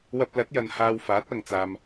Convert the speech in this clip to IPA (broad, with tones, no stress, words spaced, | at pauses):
wɐ˧p̚lɐ˨˥t̚jɐ˨n haː˧wfaː˨˥t̚ɐ˨ŋt͡saː˨m